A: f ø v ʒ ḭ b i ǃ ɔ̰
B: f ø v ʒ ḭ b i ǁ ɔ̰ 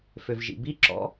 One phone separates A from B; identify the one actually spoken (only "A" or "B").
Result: B